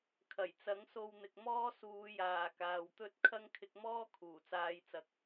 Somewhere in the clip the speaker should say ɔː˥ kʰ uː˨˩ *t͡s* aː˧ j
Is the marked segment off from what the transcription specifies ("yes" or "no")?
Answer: no